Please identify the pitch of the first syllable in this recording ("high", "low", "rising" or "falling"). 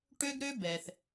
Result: high